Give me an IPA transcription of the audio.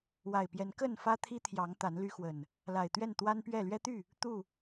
wa˨˩ɪ̯pjɛ˨˦n kə˥˨nfä˦ t̪ʰi˦t̪ʰjɑ˨˦ŋ t̪a˨˦nly˦xwə˨˩n | la˨˩ɪ̯t̪ɥɛ˥˨n t̪wa˦npɥɛ˥˨ lɥɛ˦t̪y˥˨ | t̪u˥˨

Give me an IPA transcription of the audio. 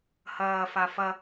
hɐːfa fɐ

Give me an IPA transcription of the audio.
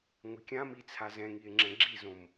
ŋʷɪkʲãmi t͡sʰazɛ̃ŋie̯ ŋ͡ǁɛ̃ɡ͡ǁizõm

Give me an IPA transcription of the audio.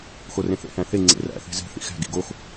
xorẽθḛ hæ̃θe ŋ͡ǀḛræ̰ θe̤ze̤ θḭxæ̤ ɡḭɡox

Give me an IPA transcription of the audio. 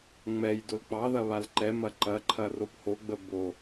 ŋ͡mɛj dolk͡pɑðɐ βalǃɛmɐ ǃɐǃʰɐ rophoɡ͡bə bo

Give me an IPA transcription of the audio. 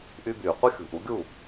ʔy˧byː˨ qʷʌ˦xʲṳ˨ʔu˨˦ɡʲu˦˨

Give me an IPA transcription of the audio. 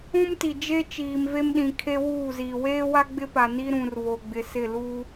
ũ˦mti˨d͡ʒe˦ t͡ʃiː˨mve˦mɗĩ˨ kʰe˦wuː˦˨ziː˨ weː˦wa˦ ɡ͡bɪ˦pa˨ni˦ ɾũ˨rβo˨ɡ͡bɪ˨ sɪ˦˨luː˦

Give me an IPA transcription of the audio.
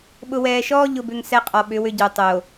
ɓʊ˨wɛː˨ʃɔː˦ ʎʊ˦bʏ˦ŋsɛ˦ qʼɔ˨ɓʏ˨˦wʏ˦ɟœ˨ tˤo˨

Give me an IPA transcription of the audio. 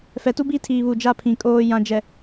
fɛ˨˦tu˦ bi˦tʰiː˨βu˨ d͡ʒa˦˨pʰĩ˨ kʼoː˨jã˨d͡ʒɛ˨

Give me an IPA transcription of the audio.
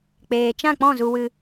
k͡peː˨t͡ʃã˦˨k͡pɔ̃˦˨ zu˧wɨ˧

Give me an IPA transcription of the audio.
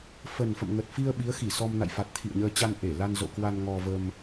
fə˨˩nfə̰˧˨m ŋə˨˩t̚fi˧ə̯ ɓi˨˦ə̯xi˧˩sɔ˧mna̰˧˨j fa˨˩t̚t̪ʰḭ˧˨ə̯ɲəː˧t͡ɕa˧n ʔe˧˩la˧n zo̰˧˨kwa˧nŋɔ˧və˧m

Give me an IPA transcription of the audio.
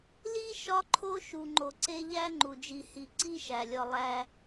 li˥ʃɒ˦ǃʰo˦ ʃu˨ŋ͡ǃo˨ǀe˦ ʎæ˥ŋ͡ǃu˩d͡ʒi˨ hi˨ǀi˦ʃæ˩lʲɒ˨ lˠæ˨

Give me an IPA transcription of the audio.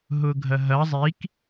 ɦʊɡʱɐɦɐ zˤik

